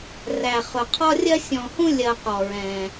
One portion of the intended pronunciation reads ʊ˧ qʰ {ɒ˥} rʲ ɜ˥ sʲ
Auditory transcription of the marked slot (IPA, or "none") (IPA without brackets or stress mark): ɒ˥